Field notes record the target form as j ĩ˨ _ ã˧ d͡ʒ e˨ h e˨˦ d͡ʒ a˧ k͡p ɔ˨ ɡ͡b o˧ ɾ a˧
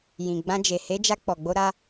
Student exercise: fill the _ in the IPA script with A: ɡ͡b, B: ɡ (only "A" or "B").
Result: A